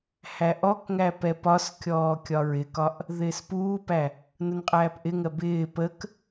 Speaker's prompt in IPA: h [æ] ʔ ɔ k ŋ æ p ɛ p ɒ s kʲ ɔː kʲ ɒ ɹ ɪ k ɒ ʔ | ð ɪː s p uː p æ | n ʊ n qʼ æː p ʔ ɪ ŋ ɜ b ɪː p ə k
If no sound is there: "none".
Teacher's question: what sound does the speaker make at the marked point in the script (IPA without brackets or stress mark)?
æ